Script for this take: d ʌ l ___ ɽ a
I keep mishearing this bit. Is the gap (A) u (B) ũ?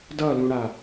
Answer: B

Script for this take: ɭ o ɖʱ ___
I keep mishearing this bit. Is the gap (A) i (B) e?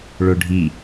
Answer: A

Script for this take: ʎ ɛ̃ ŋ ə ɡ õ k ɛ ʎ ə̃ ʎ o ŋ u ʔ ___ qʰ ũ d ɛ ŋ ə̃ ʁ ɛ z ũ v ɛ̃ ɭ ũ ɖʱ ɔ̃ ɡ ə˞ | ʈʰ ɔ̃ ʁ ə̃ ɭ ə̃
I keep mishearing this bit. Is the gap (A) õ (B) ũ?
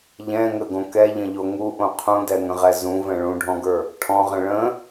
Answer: A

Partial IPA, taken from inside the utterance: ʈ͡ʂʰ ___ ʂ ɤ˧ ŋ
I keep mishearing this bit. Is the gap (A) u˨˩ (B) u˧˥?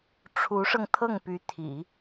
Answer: B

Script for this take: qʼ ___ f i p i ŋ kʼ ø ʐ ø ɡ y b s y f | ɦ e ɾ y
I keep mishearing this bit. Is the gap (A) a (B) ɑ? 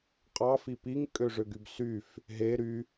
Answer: B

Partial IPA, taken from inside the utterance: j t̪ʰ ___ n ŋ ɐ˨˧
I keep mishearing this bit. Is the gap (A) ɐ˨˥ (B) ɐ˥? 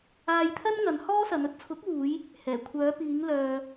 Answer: B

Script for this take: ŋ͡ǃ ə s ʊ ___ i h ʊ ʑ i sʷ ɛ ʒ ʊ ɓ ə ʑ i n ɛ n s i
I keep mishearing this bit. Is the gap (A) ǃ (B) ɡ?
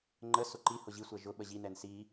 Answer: A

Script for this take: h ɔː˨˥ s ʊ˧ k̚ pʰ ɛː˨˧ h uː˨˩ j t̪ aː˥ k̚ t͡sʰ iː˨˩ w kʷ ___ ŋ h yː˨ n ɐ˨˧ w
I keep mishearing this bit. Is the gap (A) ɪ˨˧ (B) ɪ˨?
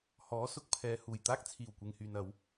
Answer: B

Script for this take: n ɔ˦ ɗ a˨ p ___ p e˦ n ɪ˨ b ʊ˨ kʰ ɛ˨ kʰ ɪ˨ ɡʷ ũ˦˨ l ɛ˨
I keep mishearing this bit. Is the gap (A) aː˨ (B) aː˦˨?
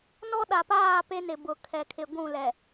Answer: B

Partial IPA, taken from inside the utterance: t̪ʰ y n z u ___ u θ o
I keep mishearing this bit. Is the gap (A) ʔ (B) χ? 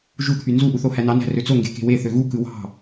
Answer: A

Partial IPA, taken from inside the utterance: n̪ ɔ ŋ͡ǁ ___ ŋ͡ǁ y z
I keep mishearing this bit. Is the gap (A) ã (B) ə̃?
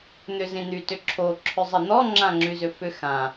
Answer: A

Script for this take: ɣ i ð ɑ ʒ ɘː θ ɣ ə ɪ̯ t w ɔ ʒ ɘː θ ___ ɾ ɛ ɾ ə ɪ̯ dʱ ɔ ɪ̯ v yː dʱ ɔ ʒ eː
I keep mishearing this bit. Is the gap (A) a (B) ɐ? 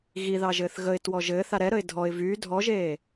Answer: A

